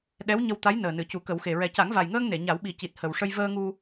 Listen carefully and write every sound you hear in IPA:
ɗ ɛ˧˥ w ɲ ə˧ w t̪ a˧˥ j n əː˨˩ n ɨ˨˩˨ c u˨˩˦ k ə˨˩˦ w x e˨˩ ɹ ɛ˨˩ c a˨˩˦ ŋ v a˨˩ j ŋ əː˧ ŋ n e˨˩˨ ɲ a˨˩˦ w ɓ i˨˩ c i˨˩ t̚ h ə˨˩ w ʂ ə˧ j v əː˧ ŋ u˧

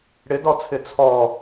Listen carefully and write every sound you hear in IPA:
ɽ ɪ d ɔ t͡sʰ ɪ t͡sʰ ɔ

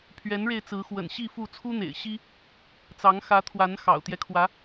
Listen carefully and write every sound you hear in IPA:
pʰ ɥ ɛ˨˦ n ɻ e˧ ɪ̯ t͡s ɹ̩˨˦ x w ə̰˨˩ n ɕ i˥˨ f u˥˨ t͡sʰ u˦ n̪ ḛ˨˩ ɪ̯ ɕ i˦ | t͡s ɑ˨˦ ŋ x ä˨˦ t̪ʰ w a˨˦ n x ɑ̰˨˩ ʊ̯ t̪ j ɛ˦ kʰ w ä˨˦

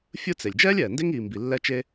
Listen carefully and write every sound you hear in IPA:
fʲ ɯ˦ t͡s e˩ lʲ d͡ʒ ɛː˥ lʲ ɛː˩ n d e˥ ŋ iː˨ m b i˨ lː ɛ˦ t͡ʃ e˦

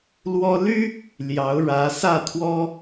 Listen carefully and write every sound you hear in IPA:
l w ɔ˥ l y˥ | l j ɑ˧˥ ʊ̯ ɻ ä˧˥ s ä˥˩ t̪ʰ w ɔ˥

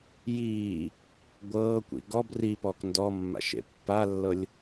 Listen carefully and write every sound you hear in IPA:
j iː | ɡʷ ɤː kʷ ḭ ɡ ɔ b r i p ɔː k n d ɔ mː a̰ ʃ ḛ pː a lː ɤ lʲ

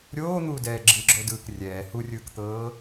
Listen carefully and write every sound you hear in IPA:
ɾʲ oː n̪ uː d ɛː ɡ͡ǁ ɯ ɡ͡ǁ o d ɯː k rʲ ɛː h u rʲ ɯː k t̪ ɤː

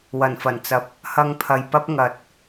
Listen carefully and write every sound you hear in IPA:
w ɐ˨˩ n f ɐ˨˩ n t͡s ɐ˨ p̚ | h ɐ˧ ŋ pʰ ɐ˨ j p ɐ˥ p̚ ŋ ɐ˨˥ t̚

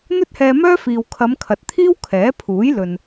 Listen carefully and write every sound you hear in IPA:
n̪ ɵ˥ t̚ h ɛː˧ m œː˥ f iː˨ w kʰ ɐ˨˧ m kʰ ɐ˨ t̚ t̪ʰ iː˥ w kʰ ɛː˨˥ pʰ uː˨˥ j l ɵ˨ n

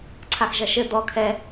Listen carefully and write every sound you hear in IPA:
ǀʰ a x ʒ ɐ ʃ ɘ d̪ ɔ kʰ ɛ

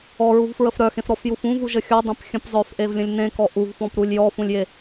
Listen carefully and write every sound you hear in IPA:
ɔ ɹ u v f ɹ ə f ɾ œ x ẽ f ɾ ɔ f j u f ũ v u ʒ ə xʲ ɔ dˤ ẽ p xʲ ə̃ p zˤ œ f ʔ e v lʲ ə̃ lʲ n ẽ k ɔ ʔ u v f ɔ̃ p ɾ u lʲ j ɔ f ũ lʲ j e

